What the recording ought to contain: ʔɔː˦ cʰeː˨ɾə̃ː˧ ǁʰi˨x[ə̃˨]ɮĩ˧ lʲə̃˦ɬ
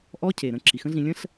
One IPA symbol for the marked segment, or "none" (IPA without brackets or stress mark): ə̃˦